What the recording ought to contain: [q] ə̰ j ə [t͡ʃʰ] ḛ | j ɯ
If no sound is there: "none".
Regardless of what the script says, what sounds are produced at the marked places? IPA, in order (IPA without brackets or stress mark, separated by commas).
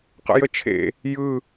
q, t͡ʃʰ